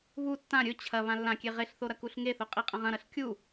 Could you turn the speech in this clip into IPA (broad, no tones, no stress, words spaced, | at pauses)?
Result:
βu tːã ɾʲɵ t͡ɕʰɐ βãlːãkʲe ʁeɬθo ɾɐkuɬŋeθo qʼiqʼɐ̃ʁɐ̃ɾɐɬ kʲu